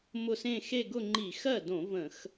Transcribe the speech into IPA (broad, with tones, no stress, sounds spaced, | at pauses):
m ʊ˥˩ s ẽ˥˧ x e˥˧ ɡ ʊ˥˧ ŋ͡ǃ i˧˩˧ x ɜ˥˩ d õ˧˩˧ v ə̃˧˩˧ x